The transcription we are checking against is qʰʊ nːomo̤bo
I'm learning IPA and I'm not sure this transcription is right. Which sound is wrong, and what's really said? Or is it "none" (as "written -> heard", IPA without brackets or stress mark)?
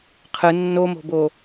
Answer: ʊ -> ɯ